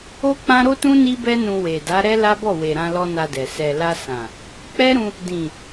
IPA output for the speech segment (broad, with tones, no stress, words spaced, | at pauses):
o˦k͡pã˦ ɾo˦tũ˦ ni˦bɛ˦nũ˧ we˨da˨˦ ɾɛ˦la˦bɔ˦˨ we˨ɾã˧lɔ˧ na˧dɛ˨ sɛ˨la˧ sã˨ | k͡pɛ˦ɾũ˧ | dĩ˨